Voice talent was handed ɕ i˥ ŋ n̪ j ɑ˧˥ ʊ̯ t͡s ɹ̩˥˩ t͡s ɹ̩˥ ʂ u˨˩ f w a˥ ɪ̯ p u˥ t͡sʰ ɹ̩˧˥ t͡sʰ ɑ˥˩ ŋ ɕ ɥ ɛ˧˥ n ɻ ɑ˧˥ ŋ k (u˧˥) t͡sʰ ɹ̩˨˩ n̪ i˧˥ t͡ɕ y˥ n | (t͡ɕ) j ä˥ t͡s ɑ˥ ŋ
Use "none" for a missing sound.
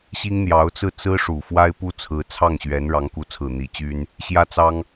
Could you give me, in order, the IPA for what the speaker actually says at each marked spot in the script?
u˧˥, ɕ

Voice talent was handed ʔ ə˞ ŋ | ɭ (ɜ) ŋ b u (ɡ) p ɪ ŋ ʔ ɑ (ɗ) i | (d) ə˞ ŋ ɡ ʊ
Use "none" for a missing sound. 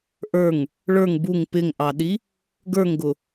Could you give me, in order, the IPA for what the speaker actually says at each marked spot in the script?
ə˞, ŋ, ɗ, ɡ

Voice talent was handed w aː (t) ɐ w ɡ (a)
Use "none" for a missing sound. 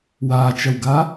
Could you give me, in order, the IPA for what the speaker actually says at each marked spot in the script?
t͡ʃ, a

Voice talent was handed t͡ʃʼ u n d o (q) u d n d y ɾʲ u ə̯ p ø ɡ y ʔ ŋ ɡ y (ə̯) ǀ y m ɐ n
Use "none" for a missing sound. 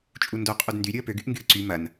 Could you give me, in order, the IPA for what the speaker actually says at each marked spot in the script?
qʼ, ə̯

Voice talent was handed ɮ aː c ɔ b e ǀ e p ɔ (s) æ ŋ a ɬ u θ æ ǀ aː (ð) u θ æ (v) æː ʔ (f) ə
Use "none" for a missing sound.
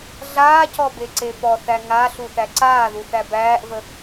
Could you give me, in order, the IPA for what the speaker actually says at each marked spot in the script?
θ, ð, b, v

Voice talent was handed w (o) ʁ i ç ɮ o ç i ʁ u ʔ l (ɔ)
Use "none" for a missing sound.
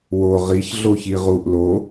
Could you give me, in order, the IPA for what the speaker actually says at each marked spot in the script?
o, o

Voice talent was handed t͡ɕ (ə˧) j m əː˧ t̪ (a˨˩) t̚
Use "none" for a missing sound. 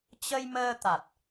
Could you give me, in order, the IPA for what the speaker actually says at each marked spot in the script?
ə˧, a˨˩

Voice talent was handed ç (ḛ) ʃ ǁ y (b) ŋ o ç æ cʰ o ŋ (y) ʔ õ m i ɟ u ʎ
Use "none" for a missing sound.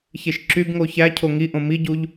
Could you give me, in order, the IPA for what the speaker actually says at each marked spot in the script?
e, b, i

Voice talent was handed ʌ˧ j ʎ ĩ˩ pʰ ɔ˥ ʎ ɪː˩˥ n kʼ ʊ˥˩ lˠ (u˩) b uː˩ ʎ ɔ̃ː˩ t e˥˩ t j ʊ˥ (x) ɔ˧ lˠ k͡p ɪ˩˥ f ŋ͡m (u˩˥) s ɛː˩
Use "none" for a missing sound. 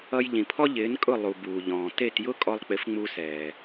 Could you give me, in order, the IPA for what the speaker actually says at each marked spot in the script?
u˩, kʼ, u˧

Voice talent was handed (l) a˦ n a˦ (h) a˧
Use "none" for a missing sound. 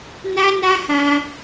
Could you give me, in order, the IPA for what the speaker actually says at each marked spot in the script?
n, h

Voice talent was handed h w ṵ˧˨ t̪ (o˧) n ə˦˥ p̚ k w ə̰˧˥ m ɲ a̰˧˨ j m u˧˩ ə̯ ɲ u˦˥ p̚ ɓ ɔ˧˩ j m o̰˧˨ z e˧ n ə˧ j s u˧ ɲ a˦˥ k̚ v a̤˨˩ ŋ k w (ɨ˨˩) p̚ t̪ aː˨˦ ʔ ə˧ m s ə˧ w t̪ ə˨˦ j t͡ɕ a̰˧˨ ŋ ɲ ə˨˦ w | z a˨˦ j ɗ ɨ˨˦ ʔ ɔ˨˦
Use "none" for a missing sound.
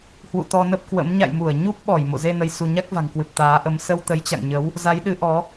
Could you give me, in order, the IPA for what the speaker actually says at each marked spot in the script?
ɔ˧, ɨ˨˩

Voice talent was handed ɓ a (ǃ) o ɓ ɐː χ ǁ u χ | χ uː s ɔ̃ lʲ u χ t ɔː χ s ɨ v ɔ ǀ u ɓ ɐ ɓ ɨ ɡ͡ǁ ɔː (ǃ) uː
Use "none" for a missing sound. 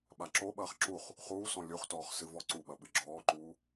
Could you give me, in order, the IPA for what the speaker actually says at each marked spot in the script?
ǁ, ǃ

